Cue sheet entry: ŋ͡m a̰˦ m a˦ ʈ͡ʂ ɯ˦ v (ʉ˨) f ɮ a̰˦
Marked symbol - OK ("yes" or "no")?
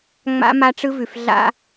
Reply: yes